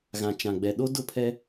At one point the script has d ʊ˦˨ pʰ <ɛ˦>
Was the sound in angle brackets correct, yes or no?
yes